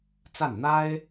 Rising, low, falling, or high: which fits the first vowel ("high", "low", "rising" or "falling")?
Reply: falling